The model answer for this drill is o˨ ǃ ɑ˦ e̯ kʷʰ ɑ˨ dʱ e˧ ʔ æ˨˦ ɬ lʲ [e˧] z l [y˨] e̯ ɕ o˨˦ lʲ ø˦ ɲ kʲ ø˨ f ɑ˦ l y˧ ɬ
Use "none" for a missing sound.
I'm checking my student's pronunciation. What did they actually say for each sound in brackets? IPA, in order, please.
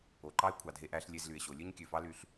e˧, y˨

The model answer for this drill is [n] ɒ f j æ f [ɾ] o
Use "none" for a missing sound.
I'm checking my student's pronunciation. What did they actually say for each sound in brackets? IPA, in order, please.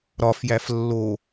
ɾ, lː

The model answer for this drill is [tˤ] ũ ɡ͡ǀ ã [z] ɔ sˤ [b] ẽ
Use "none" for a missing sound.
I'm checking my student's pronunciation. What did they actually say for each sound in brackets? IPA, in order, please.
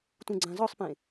t, z, p

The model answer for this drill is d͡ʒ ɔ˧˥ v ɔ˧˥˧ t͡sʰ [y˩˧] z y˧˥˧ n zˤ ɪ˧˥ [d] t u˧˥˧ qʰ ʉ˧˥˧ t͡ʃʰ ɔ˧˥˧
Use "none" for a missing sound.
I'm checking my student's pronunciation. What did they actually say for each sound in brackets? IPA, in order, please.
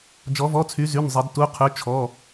y˧˥, d

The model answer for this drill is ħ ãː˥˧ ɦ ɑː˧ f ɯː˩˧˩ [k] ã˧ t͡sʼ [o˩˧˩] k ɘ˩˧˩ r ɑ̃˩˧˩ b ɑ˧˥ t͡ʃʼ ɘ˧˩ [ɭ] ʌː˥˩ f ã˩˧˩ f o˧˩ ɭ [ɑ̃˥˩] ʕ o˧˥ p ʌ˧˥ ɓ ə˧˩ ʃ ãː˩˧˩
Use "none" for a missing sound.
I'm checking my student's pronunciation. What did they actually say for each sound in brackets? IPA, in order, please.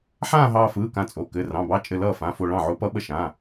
k, o˩˧˩, l, ɑ̃˥˩

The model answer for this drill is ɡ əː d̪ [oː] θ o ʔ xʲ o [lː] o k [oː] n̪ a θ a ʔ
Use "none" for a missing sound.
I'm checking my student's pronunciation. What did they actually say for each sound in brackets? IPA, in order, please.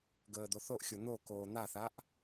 o, n̪, oː

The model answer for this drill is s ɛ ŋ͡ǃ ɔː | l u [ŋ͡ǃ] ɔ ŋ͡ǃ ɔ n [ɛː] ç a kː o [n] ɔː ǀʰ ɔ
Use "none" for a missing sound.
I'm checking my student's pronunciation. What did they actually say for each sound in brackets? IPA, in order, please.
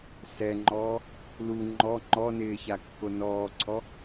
ŋ͡ǃ, ɪː, n

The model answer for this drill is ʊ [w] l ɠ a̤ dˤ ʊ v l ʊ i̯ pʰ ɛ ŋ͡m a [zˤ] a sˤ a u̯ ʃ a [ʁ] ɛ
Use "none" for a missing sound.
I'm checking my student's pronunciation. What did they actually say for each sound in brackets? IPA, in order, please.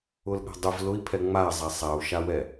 none, zˤ, w

